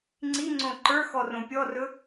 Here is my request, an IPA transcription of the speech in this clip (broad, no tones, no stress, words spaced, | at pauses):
ŋ͡ǀiŋ͡ǀõ ǃə˞xɔrõ pʲɔrɵ